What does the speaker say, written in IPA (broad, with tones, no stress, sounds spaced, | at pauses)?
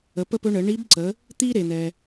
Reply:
ə˩˧ p ə˥ p ɵ˧˥ ɳ ə˩˧ ɳ i˧˥ b ǀ ə˩˧ | t̪ i˥ ɾ e˩ n̪ ɛ˩